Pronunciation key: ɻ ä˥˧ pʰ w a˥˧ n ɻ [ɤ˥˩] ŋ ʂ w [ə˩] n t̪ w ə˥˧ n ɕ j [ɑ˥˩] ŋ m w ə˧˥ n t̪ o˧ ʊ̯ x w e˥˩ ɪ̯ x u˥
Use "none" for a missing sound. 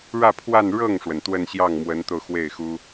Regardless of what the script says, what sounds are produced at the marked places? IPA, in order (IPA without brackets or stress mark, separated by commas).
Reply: ɤ˥˩, ə˩, ɑ˥˩